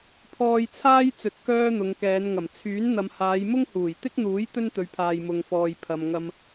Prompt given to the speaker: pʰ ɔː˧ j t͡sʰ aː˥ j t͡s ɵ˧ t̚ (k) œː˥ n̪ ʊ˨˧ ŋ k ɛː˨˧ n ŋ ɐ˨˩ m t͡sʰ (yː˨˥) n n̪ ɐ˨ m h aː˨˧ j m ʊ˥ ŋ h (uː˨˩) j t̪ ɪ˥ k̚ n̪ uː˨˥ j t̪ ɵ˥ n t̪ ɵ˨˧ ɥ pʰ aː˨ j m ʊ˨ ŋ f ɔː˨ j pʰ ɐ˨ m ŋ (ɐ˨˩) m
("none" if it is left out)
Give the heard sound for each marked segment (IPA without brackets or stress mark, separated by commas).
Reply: k, yː˨˥, uː˨˩, ɐ˧